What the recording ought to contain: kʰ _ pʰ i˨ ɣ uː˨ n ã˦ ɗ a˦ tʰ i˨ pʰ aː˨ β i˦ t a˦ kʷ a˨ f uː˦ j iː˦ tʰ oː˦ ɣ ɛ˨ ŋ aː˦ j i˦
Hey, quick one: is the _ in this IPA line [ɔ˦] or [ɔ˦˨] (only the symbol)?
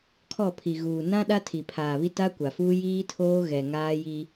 ɔ˦˨